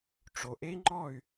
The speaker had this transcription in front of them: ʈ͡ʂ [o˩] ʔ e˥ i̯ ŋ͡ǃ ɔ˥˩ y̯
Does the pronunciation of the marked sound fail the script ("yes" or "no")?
no